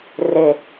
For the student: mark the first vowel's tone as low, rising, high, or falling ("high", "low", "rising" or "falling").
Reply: low